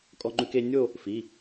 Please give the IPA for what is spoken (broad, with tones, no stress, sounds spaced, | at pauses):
kʼ ɔ˧ ŋ͡ǃ ʉ˧ k e˧ nʲ o˥˧ | f i˩˧˩